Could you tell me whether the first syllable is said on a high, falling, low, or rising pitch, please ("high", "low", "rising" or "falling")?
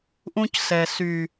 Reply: high